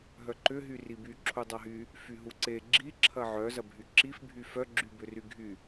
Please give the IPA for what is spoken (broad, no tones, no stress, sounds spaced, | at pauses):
ɦ œ ǃ ʏ ɦ y r i b y ǁʰ u dˤ a ɦ y | f y ɦ u ǀ e ɡ͡ǁ i ǁʰ ɐ ʕ œ z ɐ bʱ y ǁ i f bʱ y f œ ɡ͡ǁ y b ʏ r y ɡʱ y